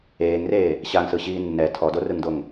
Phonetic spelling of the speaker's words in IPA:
eː ŋ r eː | ɕ a ŋ s ɯ ɕ iː nː ɛ tʰ ɔ d o r ɯ ŋ d o ŋ

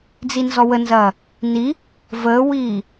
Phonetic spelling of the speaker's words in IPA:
d͡z i n z ɔ w ə n z ɐː | n i | v əː w iː

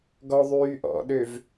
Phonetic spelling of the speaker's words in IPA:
ɡ ɔ ðˤ yː ʔ ɔ̰ ɗ ø v

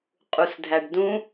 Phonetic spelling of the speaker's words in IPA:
qʼ u s dʱ æ ɖ d ũ

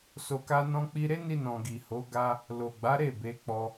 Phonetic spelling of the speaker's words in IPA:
s o˧ k a˦ n ɔ̃˦ k͡p i˦ ɾ e˦ n i˧ n ɔ̃˨ ɡ i˨ h o˨˦ ɡ a˧ | l o˨ ɡ͡b a˨˦ ɾ e˦˨ b e˨˦ k͡p ɔ˧

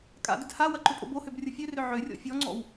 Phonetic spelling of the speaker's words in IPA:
kʼ a̰ d ʏ d h a w ɐ ǃ ʏ pʼ o̰ b o h ø b rʲ ʊ fʲ ø r ʏ ʕ ø rʲ ɔ̰ fʲ ɔ ŋ͡ǀ ɔ̰ w

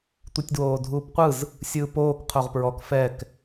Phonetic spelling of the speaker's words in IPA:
tʷ i tʲ d w oː dʱ uː p qʷ ɯ z | sʲ ɯː p oː k qʰ o ʁ p ɹ ɔ k f ɛ k

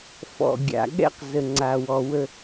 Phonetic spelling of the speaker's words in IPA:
f ɔ̰˨ ɡʲ a̰˨ ɠ ɛ̰˦ q z ə˨ ŋ͡ǀ a˨ w ɔ˨ w ə˦

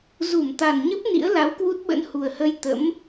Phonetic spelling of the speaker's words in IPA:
z u˧˩ m t̪ a˨˩ n ɲ ə˦˥ p̚ n ḭ˧˥ ə̯ l a˨˦ w k w u˦˥ t̚ ɓ ə̰˧˥ n h u˨˩ ə̯ h ə˧ j t̪ ə̰˧˥ m

